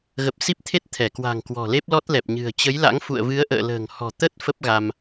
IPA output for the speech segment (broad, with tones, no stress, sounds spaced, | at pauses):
ɣ ə˨˩ p̚ s i˦˥ p̚ t̪ʰ e˦˥ t̚ t̪ʰ ɛ˧˩ k w a̤˨˩ ŋ k w ɔ̤˨˩ l e˦˥ p̚ l ɔ˦˥ t̚ l ɛ˨˩ p̚ ɲ ɨ̤˨˩ ə̯ t͡ɕ ə˨˦ j l a̰˧˥ ŋ f ṵ˧˨ ə̯ v ɨ˨˦ ə̯ ʔ ə̰ː˧˨ l ə̤ː˨˩ ŋ h ɔ̤˨˩ t̪ ə˦˥ t̚ f ə˦˥ p̚ ɣ a˧ m